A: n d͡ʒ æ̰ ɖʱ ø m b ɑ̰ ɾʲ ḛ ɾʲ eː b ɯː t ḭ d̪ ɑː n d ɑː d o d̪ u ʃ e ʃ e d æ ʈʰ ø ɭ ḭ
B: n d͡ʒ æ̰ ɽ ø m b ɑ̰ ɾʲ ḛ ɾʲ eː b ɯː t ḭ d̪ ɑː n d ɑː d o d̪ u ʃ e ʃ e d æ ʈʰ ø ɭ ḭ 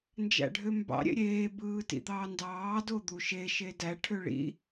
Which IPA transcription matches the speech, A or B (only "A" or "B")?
A